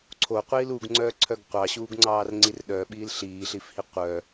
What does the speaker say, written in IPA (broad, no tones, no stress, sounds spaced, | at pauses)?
ǀʰ o qʷ iː l u ɡ ŋ͡ǀ œː ǀʰ œ ɡ qʷ ɑ ɕ uː ɡ ŋ͡ǀ ɑː r ŋ͡ǀ i r ɗ œ ɓ iː l ɬ iː ɬ i f h i qʷ œ